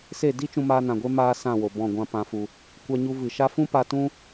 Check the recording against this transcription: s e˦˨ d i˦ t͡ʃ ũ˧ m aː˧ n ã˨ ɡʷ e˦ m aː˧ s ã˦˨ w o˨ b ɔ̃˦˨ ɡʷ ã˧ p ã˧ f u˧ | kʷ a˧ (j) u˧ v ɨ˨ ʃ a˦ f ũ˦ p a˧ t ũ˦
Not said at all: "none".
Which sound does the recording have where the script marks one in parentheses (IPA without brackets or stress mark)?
ɲ